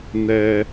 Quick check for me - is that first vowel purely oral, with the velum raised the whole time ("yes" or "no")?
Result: yes